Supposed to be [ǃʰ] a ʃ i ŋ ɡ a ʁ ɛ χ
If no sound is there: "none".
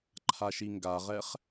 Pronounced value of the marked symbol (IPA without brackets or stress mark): ǃʰ